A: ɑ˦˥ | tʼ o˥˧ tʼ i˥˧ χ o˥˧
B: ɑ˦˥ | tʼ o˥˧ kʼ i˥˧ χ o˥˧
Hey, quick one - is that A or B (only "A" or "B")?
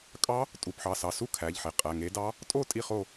A